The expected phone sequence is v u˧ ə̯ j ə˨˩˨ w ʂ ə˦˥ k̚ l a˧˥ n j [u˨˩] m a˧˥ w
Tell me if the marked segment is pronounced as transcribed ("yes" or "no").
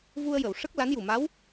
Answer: yes